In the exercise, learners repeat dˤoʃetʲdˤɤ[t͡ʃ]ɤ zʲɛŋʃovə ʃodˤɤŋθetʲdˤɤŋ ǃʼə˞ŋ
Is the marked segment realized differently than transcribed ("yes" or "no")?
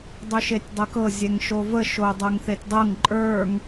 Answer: yes